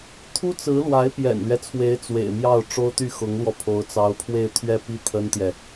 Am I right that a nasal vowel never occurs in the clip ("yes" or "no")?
yes